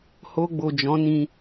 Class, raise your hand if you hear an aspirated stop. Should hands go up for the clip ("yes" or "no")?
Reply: no